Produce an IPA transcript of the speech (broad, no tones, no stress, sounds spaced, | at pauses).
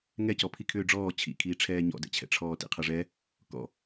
ŋ ɛ c ɔ pʰ i kʰ ʏː ɖ͡ʐ ɔː t͡ɕʰ ḭ kʰ iː ʈ͡ʂʰ ɛː ɲ ɔ̰ d ɛ̰ t͡ɕʰ ɛ̰ ʈ͡ʂʰ ɔː t ḭ qʰ ə ʐ ɛ | k ɔ̰